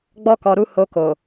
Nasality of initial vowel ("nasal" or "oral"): oral